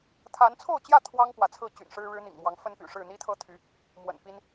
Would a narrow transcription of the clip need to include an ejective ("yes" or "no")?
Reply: no